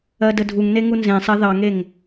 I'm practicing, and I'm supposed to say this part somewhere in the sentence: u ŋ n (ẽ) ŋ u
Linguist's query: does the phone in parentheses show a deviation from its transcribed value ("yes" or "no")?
yes